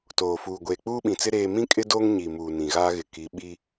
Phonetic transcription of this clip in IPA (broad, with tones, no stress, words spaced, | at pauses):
toː˨fuː˨ ɡʷeː˨k͡puː˦ɓĩ˨t͡sɪ˦ ɾeː˦ mĩ˦kʼɪ˦ doː˦ŋ ɲi˨muː˨ nĩ˨ɣaː˦ɣɪ˨ ki˨˦ɓi˦